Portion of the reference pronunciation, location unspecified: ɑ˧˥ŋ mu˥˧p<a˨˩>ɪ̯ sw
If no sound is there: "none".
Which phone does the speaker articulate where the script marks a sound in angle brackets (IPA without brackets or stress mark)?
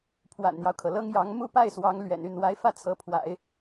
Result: a˥˩